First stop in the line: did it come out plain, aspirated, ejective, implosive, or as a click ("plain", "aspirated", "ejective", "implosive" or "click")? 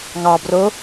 plain